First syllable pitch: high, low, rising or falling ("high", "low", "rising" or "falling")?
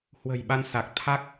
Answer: low